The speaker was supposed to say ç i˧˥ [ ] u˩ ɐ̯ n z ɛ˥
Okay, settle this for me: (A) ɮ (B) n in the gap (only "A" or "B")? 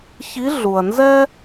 A